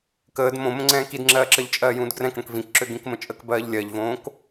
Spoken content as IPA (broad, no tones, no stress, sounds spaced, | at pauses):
k əː d m õ m ə̃ ŋ͡ǀ ɛ̃ː k i d ŋ͡ǁ ɜː ǁ ɜ ʎ t͡ʃʼ ɜː j ũː d ɡ r ɛ̃ k ɽ ə̃ k v ĩ k ǁ ø ɡ ĩ k m ə̃ t͡ʃʼ ə k b ɜː ʎ lʲ ɜ ʎ v õː k